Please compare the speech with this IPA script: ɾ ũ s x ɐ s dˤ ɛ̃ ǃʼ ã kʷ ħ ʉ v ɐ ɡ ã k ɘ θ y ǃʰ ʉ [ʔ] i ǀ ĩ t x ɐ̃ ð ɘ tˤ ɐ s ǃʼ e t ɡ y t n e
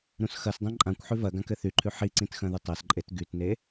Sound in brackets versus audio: incorrect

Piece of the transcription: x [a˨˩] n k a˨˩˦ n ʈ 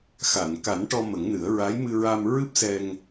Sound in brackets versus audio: incorrect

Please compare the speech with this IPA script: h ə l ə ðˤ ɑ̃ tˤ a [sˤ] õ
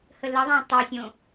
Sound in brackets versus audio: incorrect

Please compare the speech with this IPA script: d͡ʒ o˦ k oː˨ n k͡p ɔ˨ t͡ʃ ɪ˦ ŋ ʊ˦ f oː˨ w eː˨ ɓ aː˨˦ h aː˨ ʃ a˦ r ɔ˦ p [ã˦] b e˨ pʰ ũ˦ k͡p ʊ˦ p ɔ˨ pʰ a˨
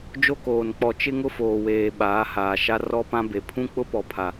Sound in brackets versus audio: correct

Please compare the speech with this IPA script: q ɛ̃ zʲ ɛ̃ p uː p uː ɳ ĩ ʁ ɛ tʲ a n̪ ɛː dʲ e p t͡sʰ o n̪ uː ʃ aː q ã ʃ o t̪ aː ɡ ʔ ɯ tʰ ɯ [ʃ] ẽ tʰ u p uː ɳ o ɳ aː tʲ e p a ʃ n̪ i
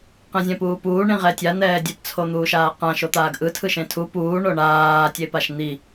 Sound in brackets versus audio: correct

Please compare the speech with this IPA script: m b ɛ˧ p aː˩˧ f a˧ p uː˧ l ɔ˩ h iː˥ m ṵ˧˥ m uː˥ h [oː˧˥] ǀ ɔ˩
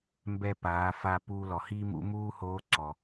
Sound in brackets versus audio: correct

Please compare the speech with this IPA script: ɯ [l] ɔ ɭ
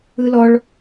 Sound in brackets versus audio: correct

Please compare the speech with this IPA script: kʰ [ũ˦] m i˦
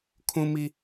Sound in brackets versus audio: correct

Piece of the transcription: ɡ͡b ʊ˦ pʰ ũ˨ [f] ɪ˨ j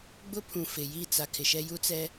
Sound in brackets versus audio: correct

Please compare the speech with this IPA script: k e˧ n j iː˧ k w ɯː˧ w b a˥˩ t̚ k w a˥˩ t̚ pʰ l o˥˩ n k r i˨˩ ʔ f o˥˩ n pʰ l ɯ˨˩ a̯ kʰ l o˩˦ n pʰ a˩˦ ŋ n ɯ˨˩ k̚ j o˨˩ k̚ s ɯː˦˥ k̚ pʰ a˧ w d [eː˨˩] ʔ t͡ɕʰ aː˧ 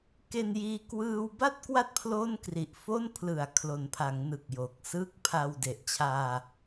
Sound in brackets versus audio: incorrect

